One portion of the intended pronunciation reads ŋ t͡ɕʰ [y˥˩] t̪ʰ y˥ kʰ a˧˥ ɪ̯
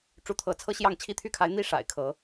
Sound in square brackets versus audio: incorrect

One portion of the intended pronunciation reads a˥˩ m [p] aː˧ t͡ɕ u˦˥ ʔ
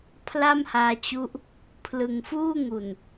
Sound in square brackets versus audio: incorrect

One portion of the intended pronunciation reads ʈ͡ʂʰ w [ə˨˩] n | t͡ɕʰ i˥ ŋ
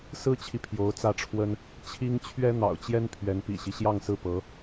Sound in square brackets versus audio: incorrect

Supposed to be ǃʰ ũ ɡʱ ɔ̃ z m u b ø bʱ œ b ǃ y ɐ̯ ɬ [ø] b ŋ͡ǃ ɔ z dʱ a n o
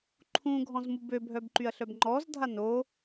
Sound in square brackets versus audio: incorrect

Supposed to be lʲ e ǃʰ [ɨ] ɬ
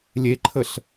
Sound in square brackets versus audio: incorrect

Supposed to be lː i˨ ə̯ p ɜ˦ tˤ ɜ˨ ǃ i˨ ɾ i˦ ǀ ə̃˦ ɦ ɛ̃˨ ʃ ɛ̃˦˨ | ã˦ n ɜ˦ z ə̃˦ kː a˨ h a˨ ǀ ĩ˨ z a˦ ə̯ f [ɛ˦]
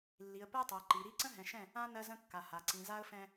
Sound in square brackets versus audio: incorrect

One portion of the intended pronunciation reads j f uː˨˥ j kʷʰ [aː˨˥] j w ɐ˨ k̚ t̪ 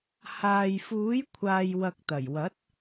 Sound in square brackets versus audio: incorrect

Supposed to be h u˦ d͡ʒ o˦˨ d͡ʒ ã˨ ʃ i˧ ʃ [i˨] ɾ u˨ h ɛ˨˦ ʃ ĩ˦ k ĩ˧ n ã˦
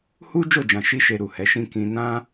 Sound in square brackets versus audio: incorrect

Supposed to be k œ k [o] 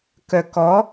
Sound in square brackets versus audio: incorrect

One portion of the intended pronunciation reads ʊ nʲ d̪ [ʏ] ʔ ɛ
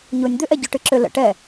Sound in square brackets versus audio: correct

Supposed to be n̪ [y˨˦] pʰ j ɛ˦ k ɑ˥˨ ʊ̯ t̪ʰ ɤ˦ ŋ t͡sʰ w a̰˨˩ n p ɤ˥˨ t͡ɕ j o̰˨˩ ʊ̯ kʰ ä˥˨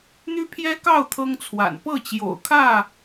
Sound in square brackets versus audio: incorrect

